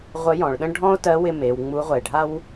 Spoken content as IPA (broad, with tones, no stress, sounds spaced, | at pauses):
ʁʷ ə˧˥ j ɔ̃˩˧ ɭ ɗ ə̃˥ ɖʱ ɔ̃˥ o̯ t ɜ˧˥ w ɪ˧ m e˩˧ w ŋ͡m u˧˥ ʁʷ ɛ˩ e̯ ɖʱ a˥ w